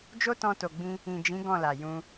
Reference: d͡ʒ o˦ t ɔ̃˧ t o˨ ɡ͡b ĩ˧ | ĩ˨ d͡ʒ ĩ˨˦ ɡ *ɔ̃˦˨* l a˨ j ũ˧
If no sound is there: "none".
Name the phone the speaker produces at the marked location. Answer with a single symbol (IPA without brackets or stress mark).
ɔ̃˦˨